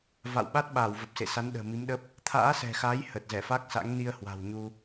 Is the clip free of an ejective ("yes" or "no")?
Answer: yes